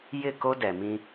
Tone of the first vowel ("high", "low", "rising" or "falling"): falling